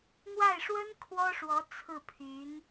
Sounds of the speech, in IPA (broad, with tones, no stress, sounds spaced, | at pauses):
n̪ w a˥˩ ɪ̯ ʂ w ə˥ n kʰ w ɔ˥ ʂ w ɔ˧˥ t͡sʰ ɹ̩˥˩ pʰ y˧˥ n